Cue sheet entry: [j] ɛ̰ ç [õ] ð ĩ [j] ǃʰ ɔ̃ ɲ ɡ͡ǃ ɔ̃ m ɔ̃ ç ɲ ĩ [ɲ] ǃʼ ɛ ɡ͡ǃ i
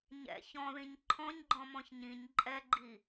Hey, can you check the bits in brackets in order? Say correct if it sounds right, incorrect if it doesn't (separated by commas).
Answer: incorrect, incorrect, incorrect, correct